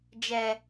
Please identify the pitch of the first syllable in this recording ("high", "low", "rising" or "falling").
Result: low